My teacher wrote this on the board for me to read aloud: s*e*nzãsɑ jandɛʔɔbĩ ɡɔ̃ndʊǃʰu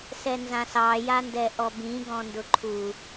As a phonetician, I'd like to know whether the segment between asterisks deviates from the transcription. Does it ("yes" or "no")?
yes